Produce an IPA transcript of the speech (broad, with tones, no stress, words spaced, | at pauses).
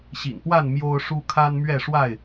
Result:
ɕḭ˨˩npwa˥˨n mjo˦ʊ̯ ʂu˦ kʰa˦nmɥɛ˥˨ʂwa˥˨ɪ̯